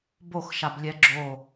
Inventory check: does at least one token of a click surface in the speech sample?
yes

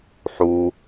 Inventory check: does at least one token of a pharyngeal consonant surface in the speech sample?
yes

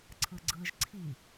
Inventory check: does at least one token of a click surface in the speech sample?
yes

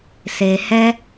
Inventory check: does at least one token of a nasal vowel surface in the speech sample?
no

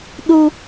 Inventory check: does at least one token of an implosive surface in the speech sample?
yes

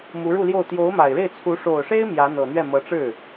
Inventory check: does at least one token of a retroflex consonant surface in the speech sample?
yes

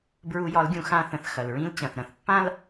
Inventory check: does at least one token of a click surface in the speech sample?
no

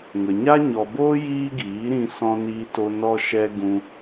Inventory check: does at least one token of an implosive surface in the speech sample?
no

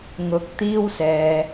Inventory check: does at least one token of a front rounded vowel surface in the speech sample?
no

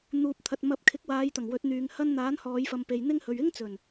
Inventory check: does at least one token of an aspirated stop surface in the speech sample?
yes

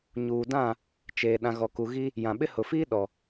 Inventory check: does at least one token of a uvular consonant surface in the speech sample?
no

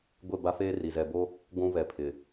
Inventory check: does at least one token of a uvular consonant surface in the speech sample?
no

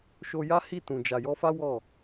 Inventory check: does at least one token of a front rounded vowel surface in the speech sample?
no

